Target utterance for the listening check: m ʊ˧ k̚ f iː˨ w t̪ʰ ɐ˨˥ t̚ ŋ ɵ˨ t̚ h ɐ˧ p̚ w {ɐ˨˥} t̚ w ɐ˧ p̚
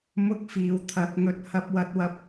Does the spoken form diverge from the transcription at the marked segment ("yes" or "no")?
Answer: yes